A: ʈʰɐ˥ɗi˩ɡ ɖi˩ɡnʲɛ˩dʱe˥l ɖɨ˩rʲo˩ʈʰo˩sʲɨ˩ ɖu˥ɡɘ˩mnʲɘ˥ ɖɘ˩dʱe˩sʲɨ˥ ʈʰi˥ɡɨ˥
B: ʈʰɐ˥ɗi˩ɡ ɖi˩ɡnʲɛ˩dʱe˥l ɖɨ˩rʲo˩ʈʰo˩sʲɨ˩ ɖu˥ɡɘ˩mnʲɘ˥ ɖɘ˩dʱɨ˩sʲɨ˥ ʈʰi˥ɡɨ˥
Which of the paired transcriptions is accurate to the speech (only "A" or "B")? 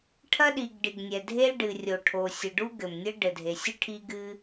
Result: A